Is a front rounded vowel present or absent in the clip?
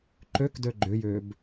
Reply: present